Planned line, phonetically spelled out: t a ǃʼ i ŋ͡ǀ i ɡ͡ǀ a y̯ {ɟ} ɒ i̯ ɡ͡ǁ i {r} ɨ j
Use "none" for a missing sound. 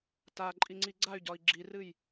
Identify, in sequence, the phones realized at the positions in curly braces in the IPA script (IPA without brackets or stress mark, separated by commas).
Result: ɟ, r